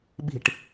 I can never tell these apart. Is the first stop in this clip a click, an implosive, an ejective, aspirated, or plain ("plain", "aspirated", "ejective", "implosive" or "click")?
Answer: implosive